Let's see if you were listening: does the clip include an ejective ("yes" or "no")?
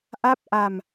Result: no